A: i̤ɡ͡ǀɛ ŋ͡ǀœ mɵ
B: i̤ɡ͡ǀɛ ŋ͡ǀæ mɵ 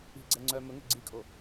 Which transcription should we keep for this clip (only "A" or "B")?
A